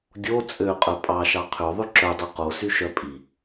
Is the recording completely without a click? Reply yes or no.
no